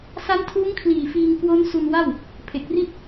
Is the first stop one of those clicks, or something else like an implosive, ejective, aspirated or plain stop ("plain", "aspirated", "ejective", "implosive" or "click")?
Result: aspirated